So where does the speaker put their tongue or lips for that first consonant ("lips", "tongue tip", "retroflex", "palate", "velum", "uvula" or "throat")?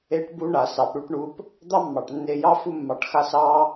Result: retroflex